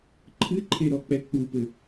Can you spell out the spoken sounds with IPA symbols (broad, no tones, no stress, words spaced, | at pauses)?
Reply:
ǃʰɨǃʰeɾɔk͡pɛ k͡pupɘ